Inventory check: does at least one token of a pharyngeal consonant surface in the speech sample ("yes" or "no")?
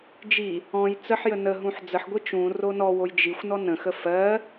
yes